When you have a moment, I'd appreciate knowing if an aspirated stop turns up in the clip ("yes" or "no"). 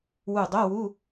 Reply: no